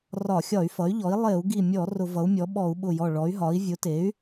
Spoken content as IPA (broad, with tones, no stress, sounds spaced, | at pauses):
r ɒ˧˩˧ xʲ ɒ˧˩˧ y̯ f ʌ˩˥ y̯ ʎ ɔ˩˥ i̯ lˠ e˧˩˧ u̯ ɡ i˧˩ mʲ ɔ˧˩˧ r ʊ˧˩˧ v ʌ˩˥ u̯ mʲ ɔ˩˥ ɓ ɔ˧˩˧ u̯ ɓ ʊ˧˩ j ɔ˧˩ ɭ ɔ˩˥ y̯ ɦ ɒ˩˥ i̯ vʲ ʊ˩˥ t e˩˥ y̯